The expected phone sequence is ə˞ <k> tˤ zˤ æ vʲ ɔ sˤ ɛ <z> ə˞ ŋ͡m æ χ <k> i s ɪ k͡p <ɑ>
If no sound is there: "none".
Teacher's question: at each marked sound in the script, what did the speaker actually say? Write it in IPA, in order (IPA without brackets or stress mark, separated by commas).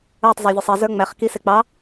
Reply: none, z, k, ɑ